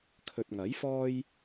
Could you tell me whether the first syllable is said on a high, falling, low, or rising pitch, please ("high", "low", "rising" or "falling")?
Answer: low